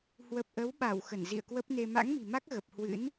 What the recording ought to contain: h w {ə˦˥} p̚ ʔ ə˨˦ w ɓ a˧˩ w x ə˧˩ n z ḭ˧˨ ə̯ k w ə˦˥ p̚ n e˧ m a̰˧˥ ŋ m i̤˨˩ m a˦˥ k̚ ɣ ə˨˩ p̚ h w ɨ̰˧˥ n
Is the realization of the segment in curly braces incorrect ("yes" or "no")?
yes